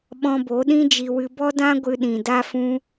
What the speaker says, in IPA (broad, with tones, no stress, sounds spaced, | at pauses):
ɓ ɔ̃˧ b o˨˦ ɗ ĩ˦ d͡ʒ i˧ w ɨ˧ b ɔ˦ d ã˦ ɡʷ ɨ˦ ɗ ĩ˧ d a˦ f ũ˦